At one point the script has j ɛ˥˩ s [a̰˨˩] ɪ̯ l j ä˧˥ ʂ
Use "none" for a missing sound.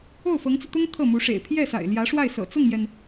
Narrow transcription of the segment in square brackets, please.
a̰˨˩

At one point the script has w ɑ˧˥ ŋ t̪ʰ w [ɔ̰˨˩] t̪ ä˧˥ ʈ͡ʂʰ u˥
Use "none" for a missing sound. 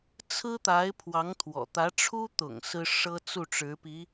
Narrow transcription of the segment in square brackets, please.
ɔ̰˨˩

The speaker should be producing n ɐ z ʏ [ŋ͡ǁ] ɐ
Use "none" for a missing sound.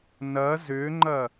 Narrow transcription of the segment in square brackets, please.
ŋ͡ǃ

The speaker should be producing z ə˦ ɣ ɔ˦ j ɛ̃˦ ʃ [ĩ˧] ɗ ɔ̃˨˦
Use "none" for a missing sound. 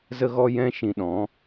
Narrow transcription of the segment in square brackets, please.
ĩ˧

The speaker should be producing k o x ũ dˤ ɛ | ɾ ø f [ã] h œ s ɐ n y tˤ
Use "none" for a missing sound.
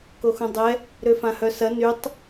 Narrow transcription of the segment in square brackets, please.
ã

